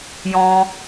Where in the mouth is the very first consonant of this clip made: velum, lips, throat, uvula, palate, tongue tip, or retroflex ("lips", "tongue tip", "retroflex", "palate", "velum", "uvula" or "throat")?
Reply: palate